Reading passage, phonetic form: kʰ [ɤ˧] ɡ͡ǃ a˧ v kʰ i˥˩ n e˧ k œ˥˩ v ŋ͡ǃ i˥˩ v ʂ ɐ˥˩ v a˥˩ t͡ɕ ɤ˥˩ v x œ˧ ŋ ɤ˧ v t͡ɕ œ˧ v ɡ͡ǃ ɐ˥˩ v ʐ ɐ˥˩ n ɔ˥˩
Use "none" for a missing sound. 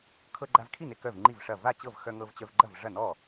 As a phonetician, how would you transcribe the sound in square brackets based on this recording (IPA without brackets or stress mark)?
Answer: ɤ˧